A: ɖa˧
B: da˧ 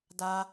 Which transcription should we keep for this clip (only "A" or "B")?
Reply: B